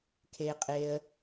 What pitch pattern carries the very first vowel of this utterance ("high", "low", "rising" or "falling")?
low